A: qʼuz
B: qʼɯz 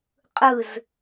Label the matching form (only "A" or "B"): B